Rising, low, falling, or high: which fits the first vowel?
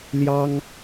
high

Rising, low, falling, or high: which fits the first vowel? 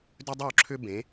high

